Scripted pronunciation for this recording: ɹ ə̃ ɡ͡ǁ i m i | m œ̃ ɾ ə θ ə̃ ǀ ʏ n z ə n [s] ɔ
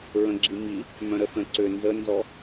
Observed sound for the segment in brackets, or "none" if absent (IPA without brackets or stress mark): z